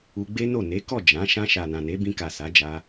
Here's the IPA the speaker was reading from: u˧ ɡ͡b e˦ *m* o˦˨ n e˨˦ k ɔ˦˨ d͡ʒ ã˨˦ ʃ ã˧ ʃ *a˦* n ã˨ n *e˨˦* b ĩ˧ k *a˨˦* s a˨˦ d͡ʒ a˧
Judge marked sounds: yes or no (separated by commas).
no, no, yes, no